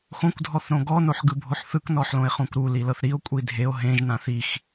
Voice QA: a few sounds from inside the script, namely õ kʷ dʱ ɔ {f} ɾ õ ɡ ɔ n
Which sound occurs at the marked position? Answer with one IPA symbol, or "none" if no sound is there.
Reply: θ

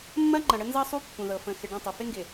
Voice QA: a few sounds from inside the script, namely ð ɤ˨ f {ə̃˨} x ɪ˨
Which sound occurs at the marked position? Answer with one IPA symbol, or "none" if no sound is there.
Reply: ə̃˨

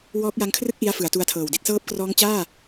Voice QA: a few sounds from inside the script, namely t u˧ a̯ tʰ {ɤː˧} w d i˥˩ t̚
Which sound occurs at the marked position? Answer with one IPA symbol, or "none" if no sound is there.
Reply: ɤː˨˩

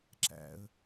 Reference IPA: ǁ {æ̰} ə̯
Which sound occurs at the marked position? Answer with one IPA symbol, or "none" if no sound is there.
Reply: æ̰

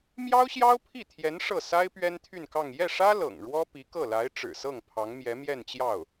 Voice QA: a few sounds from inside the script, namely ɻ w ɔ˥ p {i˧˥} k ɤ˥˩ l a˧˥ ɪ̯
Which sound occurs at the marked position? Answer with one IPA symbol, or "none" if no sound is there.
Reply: i˧˥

